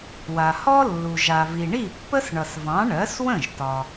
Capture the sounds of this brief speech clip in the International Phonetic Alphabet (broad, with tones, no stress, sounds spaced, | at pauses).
w a˩ h ɔ˥ lː u˩ ʒ a˩ v i˩ ɳ i˥˩ pː ə˥ s ɳ ʌ˩ s v ɑ̃˩˥ ɳ ɜ˩˥ s w ə̃˥˩ ʒ t ɒ˩